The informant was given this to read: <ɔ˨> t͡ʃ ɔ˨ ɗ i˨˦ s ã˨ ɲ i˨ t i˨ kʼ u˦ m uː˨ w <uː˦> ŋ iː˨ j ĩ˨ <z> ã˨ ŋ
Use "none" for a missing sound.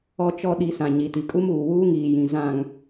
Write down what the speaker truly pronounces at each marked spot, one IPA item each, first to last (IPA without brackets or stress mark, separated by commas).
ɔ˨, uː˦, z